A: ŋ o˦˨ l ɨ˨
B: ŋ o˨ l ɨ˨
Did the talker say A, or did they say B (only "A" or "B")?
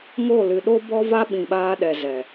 A